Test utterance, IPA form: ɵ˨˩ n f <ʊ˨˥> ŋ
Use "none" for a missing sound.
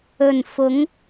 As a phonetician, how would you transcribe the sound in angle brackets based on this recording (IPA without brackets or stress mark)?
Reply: ʊ˨˥